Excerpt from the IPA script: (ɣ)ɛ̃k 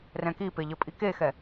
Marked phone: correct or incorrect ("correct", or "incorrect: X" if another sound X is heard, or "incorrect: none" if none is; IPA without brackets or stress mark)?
incorrect: r